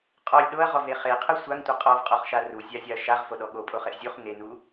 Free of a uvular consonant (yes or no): no